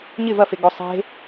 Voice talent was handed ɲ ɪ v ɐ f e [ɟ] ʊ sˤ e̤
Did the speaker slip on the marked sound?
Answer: yes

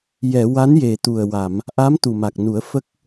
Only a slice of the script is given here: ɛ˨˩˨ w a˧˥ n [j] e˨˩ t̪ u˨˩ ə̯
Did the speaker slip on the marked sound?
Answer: no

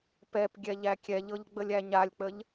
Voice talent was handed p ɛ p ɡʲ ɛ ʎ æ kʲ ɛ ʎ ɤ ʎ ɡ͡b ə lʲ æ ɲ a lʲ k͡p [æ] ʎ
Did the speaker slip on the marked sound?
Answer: yes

